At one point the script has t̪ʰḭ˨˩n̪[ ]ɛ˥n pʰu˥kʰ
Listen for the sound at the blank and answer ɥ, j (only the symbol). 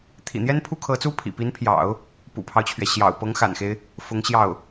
j